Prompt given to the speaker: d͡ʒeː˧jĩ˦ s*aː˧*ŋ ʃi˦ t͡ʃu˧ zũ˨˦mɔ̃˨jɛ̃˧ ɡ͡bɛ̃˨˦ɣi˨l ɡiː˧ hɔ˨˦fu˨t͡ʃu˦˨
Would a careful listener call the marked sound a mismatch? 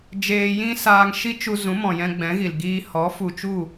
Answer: no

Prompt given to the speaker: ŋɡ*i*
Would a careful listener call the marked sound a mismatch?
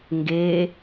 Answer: yes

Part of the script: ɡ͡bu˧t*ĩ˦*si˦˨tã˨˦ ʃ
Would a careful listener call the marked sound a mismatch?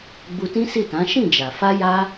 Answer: no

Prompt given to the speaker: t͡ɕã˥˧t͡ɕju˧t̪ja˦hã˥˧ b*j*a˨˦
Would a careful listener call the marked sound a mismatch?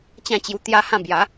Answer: no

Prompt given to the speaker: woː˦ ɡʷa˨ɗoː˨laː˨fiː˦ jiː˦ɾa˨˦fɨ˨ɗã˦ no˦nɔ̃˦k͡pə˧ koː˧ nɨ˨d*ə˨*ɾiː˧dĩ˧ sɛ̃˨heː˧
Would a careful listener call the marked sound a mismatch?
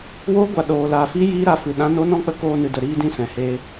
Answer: no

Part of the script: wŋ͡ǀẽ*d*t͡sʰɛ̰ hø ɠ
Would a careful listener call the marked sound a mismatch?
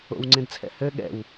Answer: no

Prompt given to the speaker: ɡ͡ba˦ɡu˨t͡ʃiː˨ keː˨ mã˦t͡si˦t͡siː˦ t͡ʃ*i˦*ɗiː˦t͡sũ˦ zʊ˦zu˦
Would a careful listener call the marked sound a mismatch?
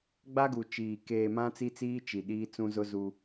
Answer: yes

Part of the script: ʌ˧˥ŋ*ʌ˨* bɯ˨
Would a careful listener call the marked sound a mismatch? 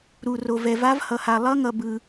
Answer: no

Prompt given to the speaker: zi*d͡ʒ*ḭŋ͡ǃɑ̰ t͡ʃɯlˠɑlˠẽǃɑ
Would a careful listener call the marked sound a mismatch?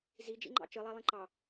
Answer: no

